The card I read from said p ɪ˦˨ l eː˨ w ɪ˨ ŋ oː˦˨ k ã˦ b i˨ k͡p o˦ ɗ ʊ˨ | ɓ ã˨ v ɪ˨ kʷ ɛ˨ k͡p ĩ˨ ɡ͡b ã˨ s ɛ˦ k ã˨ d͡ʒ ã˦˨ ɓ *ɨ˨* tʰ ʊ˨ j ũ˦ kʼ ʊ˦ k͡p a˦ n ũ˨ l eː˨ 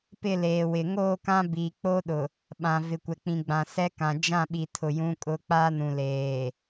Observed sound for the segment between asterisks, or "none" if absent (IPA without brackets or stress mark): i˨